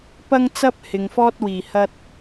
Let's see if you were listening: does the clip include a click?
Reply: no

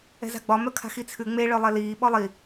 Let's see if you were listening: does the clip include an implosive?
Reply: yes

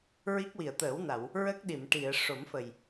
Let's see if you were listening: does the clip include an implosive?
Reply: yes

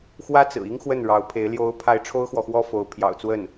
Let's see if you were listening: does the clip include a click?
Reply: no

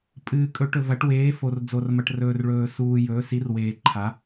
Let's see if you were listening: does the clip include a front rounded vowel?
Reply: no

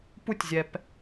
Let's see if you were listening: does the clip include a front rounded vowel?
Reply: no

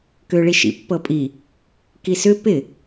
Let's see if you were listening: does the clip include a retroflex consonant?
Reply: yes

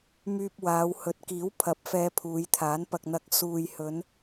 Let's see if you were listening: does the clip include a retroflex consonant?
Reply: no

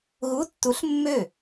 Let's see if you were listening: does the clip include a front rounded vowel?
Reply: yes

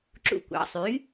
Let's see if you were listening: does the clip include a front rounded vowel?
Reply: yes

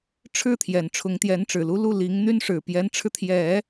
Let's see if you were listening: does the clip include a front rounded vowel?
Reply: yes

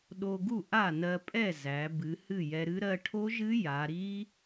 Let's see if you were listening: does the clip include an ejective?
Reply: yes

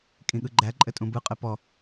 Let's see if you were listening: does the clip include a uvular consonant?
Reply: yes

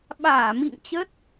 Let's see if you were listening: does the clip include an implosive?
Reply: yes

